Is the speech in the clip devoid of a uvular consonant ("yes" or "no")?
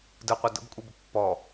no